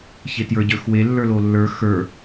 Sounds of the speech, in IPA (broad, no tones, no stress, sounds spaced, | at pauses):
ç e t j ə˞ ɟ ə˞ x w e lː ə˞ l o lː ə˞ x ə˞